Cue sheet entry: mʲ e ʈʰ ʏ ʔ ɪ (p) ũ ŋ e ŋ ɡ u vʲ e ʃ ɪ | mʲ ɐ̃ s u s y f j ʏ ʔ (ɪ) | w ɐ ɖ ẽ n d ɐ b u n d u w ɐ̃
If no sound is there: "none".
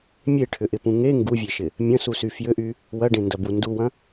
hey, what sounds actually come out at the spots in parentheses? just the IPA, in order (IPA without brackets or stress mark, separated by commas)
p, y